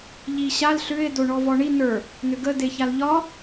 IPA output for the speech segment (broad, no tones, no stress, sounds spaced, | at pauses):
ʎ i ɕ a l ɬ ʏ e̯ d o ɳ ɔ v ɔ ɳ i n ə˞ | n ʏ ɡ ə d e ç a l ʎ ɒ